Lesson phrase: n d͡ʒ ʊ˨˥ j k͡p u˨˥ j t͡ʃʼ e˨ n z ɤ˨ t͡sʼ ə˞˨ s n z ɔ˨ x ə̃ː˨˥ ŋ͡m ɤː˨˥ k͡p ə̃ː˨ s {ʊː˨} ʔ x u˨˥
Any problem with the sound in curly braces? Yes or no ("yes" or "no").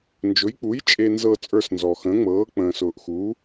no